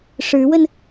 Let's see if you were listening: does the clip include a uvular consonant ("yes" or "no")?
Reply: no